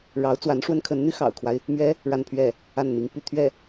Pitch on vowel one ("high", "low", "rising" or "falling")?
rising